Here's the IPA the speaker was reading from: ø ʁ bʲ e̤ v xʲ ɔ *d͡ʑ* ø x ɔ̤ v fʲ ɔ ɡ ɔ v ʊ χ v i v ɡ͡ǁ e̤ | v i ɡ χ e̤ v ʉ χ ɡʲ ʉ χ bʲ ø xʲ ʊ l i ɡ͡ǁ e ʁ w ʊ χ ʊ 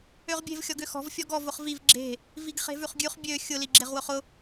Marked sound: incorrect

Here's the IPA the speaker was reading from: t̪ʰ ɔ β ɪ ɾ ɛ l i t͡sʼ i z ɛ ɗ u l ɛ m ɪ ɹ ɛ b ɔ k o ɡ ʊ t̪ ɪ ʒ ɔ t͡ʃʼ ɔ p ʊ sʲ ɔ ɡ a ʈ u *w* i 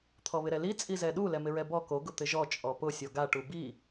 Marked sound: incorrect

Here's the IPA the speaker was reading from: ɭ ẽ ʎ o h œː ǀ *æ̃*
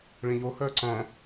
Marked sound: correct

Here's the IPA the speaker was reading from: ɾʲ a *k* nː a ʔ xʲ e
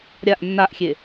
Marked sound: incorrect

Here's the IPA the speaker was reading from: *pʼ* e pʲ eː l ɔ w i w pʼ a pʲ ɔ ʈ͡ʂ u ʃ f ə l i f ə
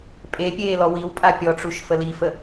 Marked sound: correct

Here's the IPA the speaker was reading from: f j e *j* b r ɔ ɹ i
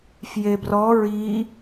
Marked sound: incorrect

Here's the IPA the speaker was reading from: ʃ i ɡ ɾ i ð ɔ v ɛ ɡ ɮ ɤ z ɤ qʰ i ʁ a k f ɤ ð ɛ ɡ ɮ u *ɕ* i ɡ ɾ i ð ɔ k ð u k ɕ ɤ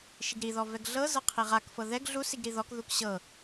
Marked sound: incorrect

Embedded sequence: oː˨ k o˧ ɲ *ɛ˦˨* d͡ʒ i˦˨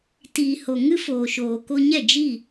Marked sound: correct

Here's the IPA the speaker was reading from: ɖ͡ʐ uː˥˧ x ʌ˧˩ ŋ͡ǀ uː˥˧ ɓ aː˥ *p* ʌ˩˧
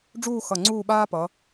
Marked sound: correct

